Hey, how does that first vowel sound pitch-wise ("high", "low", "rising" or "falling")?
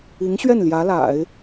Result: rising